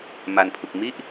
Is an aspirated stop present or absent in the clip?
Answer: present